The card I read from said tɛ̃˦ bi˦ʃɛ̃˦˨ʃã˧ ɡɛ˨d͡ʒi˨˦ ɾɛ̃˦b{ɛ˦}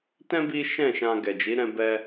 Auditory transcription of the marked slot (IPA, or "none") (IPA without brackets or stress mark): ɛ˦